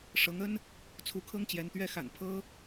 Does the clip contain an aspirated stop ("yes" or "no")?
yes